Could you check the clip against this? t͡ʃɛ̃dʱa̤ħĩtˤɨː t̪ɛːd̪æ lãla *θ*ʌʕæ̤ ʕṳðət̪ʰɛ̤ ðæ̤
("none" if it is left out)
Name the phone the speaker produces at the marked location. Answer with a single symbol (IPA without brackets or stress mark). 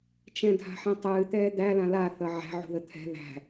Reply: θ